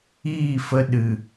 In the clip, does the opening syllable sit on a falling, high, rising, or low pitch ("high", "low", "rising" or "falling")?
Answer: falling